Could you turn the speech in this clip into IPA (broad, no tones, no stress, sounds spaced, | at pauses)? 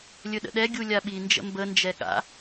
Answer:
lʲ ɵ ɗ ə̰ ɗ ɛ ɡʲ u lʲ a ɓ i n d͡ʒ ə̰ m b ə n d͡ʒ ɛ ɠ a̰